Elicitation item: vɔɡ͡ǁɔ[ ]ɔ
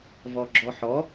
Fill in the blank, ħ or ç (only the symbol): ħ